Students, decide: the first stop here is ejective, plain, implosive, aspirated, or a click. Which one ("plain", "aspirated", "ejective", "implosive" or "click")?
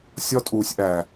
ejective